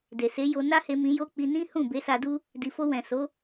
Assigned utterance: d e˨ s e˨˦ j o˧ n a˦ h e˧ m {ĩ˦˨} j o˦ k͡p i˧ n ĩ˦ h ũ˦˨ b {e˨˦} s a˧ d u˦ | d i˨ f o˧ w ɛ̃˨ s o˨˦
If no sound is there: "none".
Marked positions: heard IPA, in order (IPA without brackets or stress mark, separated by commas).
ĩ˧, e˨˦